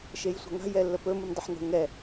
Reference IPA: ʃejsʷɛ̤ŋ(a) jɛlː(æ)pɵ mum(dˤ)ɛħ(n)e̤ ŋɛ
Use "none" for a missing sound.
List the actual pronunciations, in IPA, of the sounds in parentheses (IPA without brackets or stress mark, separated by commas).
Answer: a̤, ə, dˤ, n